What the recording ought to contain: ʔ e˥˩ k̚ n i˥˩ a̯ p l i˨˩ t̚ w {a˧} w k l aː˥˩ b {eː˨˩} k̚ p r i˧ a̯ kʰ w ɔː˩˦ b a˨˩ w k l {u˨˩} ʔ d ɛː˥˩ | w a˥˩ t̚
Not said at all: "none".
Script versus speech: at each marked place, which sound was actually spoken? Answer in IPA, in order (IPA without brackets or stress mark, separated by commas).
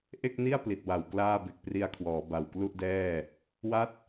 a˨˩, e˨˩, u˥˩